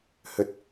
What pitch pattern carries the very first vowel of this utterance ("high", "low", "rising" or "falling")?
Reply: high